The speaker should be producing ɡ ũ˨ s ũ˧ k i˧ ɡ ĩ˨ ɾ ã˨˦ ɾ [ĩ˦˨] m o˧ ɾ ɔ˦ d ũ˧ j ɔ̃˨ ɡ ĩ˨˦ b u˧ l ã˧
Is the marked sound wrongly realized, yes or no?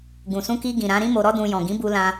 yes